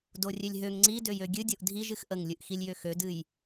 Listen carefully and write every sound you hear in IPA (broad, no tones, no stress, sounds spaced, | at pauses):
d o rʲ ø lʲ ɦ ø ŋ ŋ͡ǀ i d ø j ø ɡʲ ɨ dʲ o ʔ dʱ i ʒ ɨ x ʔ ə ŋ lʲ ɨ ʔ x i lʲ j ø x ø d ɨ j